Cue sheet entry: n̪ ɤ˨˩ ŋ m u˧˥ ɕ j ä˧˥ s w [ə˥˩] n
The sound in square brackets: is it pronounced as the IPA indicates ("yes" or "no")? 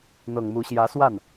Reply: no